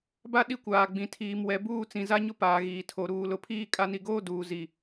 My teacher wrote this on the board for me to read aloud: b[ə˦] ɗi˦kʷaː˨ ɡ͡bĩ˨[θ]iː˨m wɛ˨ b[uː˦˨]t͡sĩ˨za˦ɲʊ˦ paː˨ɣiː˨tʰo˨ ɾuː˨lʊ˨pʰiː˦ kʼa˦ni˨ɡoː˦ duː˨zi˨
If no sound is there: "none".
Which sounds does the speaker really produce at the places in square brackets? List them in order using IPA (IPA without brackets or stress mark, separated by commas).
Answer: a˦, tʰ, uː˦˨